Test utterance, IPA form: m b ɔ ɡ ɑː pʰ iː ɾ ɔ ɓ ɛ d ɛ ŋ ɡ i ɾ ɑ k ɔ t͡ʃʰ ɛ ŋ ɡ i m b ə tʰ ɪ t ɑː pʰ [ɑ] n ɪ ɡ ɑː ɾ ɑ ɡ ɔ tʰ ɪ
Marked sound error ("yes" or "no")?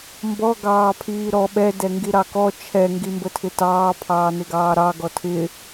yes